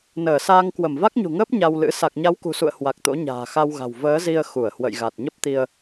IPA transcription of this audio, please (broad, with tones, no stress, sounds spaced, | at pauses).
n əː˧˩ s aː˧ ŋ k w ə˧˩ m v a˦˥ k̚ ɲ ṳ˨˩ ŋ əː˦˥ p̚ ɲ a˧ w l ɨ̰˧˥ s a˨˩ k̚ ɲ a˨˦ w k ṳ˨˩ s ṵ˧˨ ə̯ h w a˨˩ k̚ t̪ o̰˧˥ ɲ a̤ː˨˩ x a˧ w ɣ a̤˨˩ w v əː˨˦ z i˧ ə̯ x u˧˩ ə̯ h w ə̰˧˨ j ɣ a˨˩ t̚ ɲ ə˦˥ p̚ t̪ i˧ ə̯